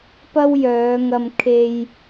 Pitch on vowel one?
high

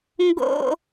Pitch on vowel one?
high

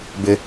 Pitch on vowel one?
high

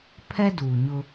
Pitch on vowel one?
high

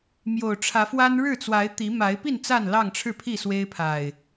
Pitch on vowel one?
low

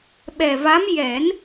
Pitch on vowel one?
low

